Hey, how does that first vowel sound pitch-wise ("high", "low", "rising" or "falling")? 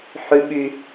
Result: high